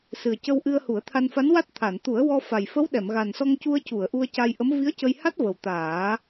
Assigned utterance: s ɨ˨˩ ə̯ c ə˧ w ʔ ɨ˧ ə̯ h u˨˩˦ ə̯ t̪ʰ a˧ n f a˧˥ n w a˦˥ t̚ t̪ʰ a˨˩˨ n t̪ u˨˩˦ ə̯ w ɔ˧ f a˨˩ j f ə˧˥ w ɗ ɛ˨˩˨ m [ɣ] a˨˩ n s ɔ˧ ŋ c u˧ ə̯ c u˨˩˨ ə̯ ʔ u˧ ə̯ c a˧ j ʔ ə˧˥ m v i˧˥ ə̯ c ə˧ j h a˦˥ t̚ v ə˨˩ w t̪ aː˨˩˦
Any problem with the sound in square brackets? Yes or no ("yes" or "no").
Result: no